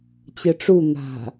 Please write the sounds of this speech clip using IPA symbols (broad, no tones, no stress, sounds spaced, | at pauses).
t͡ɕ ɯ ʈ͡ʂ u n̪ a̤